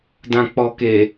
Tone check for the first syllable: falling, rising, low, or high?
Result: low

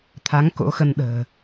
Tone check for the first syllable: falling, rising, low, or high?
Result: rising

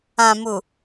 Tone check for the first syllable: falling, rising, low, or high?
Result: low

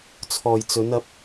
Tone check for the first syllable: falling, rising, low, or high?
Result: low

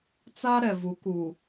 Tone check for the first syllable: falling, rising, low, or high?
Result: high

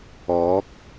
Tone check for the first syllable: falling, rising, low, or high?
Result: rising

